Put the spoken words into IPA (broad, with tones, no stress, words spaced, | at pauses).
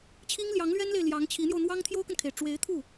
t͡ɕʰi˥ŋljɑ˧˥ŋlɥɛ˥nle˨ɪ̯ ljɑ˧˥ŋt͡ɕʰi˧˥n̪jo˧ʊ̯n̪wɑ˥ŋ t̪ʰjo˥ʊ̯kə˨nkʰe˩ɪ̯ ʈ͡ʂwe˧˥ɪ̯t̪ʰu˥˩